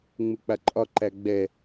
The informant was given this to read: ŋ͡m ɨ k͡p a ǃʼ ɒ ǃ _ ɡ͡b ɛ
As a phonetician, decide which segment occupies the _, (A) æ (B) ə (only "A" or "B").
A